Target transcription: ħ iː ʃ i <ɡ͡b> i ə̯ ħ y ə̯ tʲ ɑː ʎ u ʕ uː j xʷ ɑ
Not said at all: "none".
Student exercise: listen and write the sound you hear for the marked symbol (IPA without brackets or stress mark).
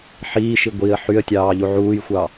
ɡʷ